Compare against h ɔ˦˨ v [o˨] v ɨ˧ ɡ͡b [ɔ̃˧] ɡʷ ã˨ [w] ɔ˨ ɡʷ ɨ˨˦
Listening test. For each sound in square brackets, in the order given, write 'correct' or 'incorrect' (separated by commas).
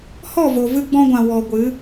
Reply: correct, correct, correct